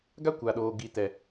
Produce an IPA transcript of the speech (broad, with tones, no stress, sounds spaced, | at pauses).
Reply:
ɡ a˦ kʷ a˨ ɗ oː˨ ɡ i˨ t ɛ˨